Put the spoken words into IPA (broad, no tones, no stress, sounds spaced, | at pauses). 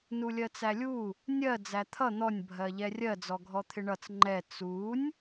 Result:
n u lʲ ɜ t͡s æ lʲ u | nʲ ɜ d͡z æ t̪ʰ ʌ n̪ ɔ nʲ bʱ ɜ ʎ ɛ rʲ ɜ d͡z ɔ ɡʱ ɔ t̪ʰ ɪ ɳ ʌ t͡s ŋ͡ǃ ɛ t͡s u nʲ